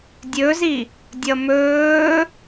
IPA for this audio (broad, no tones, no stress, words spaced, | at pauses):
dʲɵzi | dʲʌmɵː